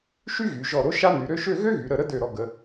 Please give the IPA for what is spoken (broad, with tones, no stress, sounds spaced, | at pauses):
ʃ y˥ ɣ y˩˧ ʒ ɔ˧˩ ɾ o˥ ʃ a˥ n y˩˧ ɾ ø˥ ʃ ø˥˧ ɣ ø˥ ɣ y˩˧ ɾ ə˧˩ ɾ ə˥ d ø˧˩ ɾ ɔ˧ ɡ ə˩˧